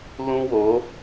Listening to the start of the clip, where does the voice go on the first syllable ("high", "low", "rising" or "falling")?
high